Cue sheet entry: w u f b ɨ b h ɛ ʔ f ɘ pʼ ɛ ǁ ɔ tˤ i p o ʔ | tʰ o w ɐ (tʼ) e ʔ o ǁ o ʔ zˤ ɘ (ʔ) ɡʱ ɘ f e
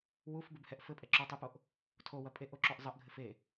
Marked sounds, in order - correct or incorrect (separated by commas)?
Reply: incorrect, correct